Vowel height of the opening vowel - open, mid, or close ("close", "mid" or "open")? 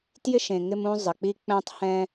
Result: close